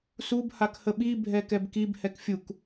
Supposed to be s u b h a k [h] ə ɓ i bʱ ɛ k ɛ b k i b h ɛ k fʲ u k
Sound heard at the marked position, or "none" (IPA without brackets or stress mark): h